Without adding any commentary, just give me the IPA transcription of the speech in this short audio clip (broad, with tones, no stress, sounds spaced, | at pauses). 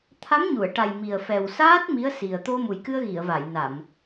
t̪ʰ a˧˥ m ɲ u˨˩˨ ə̯ ʈ a˨˩ j m i˨˩ ə̯ f ɛ˨˩ w s aː˦˥ t̚ m i˧˥ ə̯ s i˨˩ ə̯ t̪ o˧ m u˨˩ j k ɨ˧ ə̯ ɣ i˨˩˨ ə̯ v a˨˩˨ j n a˨˩˨ m